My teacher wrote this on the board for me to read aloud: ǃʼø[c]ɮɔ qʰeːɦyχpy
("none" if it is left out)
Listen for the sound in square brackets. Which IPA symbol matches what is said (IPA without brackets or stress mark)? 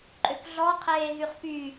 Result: k